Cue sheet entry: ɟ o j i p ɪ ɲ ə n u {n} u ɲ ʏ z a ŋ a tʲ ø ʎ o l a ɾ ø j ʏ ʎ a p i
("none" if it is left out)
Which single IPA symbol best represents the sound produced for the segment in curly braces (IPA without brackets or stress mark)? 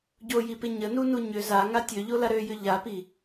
n